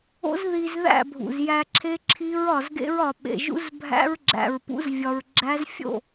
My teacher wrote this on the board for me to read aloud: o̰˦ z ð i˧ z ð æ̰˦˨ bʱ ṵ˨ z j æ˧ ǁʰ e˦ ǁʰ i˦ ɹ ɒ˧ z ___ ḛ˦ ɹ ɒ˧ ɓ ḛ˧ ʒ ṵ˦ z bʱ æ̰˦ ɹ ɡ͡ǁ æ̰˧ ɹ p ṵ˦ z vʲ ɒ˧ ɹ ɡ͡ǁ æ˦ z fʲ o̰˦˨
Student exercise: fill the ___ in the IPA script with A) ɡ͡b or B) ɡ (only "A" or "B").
B